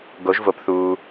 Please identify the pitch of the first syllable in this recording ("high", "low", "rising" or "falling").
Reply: rising